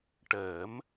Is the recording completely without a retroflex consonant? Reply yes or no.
no